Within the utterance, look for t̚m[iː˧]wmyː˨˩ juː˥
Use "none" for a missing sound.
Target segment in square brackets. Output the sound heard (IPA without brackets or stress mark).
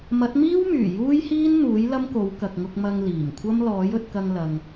iː˥